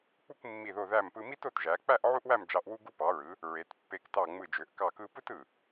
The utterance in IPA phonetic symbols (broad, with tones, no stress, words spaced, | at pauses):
k͡pu˥˧kmːi˧˩ðo˧˩ ðæ˧˩mpɯ˧mi˥t o˧tʒæ˩˧k͡pæ˥˧ʔ ʕu˥ʔwæ˥˧md͡ʒɑ˧ʔ wu˧ɡu˧pɑ˩˧ɹɯ˩˧ | ɹe˩˧tpːe˧˩ktɑ˧˩ ŋ͡mɯ˧˩d͡ʒø˩˧ʔ kɑ˧˩kɯ˧pɯ˥t ɯ˧˩